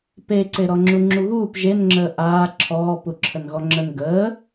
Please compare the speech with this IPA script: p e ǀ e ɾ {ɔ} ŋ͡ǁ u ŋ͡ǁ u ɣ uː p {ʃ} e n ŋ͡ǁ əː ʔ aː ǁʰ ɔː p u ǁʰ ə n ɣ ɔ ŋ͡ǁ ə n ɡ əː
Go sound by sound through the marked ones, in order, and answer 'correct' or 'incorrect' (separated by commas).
correct, incorrect